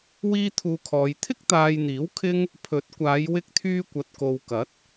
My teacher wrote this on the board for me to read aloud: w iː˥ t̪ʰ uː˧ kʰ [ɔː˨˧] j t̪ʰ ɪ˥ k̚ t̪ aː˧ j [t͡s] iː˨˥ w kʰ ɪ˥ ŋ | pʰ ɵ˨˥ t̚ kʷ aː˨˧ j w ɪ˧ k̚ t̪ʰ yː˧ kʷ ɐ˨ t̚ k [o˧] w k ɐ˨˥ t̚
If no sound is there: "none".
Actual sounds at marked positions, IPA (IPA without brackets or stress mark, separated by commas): ɔː˨˧, n̪, o˨